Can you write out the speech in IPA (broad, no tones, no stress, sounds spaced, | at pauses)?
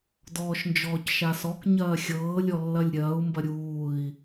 d ɔː ʃ n d͡ʒ ɔː c ʃ a s ɔ k ɲ ɐː xʲ ɤː lʲ ɔ lː ɐ lʲ ɾʲ ɐː u̯ m b ɐ ɾʲ uː i̯